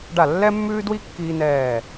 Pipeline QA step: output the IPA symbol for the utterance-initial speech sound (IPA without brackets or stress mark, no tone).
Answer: ɖ